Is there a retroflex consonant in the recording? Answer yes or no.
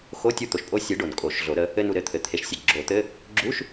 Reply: yes